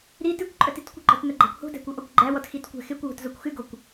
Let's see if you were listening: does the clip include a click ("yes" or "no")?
yes